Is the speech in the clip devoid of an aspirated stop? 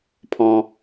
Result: no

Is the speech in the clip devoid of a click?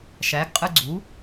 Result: no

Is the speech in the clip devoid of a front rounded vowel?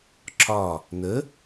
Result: yes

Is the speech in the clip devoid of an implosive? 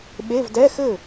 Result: no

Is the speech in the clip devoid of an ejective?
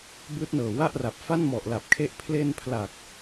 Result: yes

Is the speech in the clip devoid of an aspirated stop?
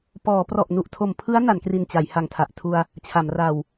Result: no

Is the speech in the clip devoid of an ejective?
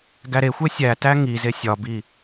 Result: yes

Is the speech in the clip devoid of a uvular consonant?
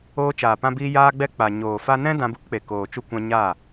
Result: yes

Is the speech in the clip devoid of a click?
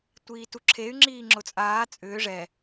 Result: no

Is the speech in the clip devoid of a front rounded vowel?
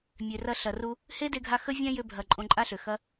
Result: no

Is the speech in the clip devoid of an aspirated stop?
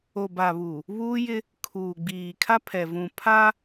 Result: no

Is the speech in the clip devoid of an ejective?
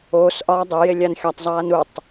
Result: yes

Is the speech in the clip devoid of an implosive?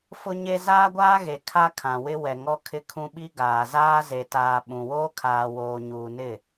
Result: no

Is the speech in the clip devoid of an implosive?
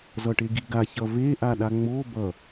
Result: no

